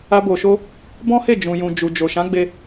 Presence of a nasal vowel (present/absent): present